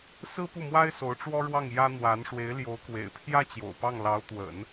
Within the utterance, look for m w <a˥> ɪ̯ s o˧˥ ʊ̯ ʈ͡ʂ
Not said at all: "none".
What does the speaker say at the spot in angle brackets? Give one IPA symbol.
a˥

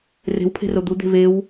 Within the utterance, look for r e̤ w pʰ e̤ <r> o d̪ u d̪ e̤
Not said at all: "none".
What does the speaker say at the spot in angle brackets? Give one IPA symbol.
r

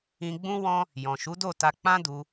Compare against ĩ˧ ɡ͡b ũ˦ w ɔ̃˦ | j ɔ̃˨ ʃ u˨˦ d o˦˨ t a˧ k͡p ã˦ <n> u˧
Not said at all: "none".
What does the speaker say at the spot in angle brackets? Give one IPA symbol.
d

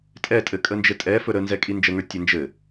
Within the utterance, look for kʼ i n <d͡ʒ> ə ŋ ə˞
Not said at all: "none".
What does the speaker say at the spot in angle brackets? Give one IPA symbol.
d͡ʒ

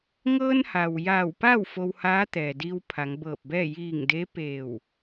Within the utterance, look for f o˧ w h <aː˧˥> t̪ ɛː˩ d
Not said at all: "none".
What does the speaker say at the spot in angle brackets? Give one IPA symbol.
aː˧˥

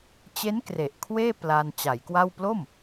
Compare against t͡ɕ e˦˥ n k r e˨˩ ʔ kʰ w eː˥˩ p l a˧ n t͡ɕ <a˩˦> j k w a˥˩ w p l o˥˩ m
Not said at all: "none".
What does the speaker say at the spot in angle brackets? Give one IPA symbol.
a˩˦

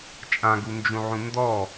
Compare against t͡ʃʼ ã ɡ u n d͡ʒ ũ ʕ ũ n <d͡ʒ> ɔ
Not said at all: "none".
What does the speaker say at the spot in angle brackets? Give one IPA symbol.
d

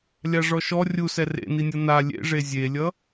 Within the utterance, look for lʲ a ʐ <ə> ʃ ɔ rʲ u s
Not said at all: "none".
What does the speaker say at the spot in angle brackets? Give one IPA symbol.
ɔ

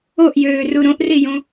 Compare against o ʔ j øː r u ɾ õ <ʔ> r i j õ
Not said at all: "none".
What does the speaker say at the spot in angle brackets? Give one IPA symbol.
ʔ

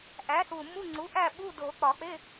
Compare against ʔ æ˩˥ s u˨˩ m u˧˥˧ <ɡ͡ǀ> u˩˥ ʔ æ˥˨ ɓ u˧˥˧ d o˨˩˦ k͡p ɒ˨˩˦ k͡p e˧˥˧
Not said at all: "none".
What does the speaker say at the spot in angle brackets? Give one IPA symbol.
ŋ͡ǀ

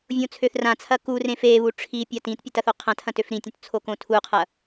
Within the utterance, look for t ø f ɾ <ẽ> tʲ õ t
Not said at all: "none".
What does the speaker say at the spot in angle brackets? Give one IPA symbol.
ĩ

